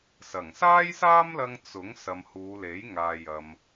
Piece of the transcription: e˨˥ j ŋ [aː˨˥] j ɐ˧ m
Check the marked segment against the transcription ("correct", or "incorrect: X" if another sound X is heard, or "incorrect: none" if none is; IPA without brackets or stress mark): incorrect: aː˨